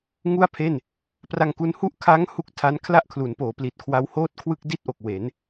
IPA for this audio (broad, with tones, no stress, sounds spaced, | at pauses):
ŋ u˥˩ a̯ pʰ e˥˩ n | p r a˧ ŋ k u˧ n h u˥˩ ʔ kʰ a˦˥ ŋ h u˦˥ k̚ tʰ a˦˥ n kʰ l a˥˩ ʔ kʰ l u˩˦ n p oː˩˦ p l i˨˩ t̚ kʰ w a˦˥ w h oː˥˩ t̚ kʰ w ɯ˥˩ k̚ d i˥˩ t̚ ʔ o˨˩ k̚ w e˩˦ n